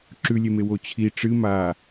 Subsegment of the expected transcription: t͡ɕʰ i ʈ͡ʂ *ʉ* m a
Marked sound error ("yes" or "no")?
yes